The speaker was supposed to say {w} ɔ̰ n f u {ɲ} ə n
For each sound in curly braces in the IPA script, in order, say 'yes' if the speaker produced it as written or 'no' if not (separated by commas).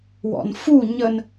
yes, yes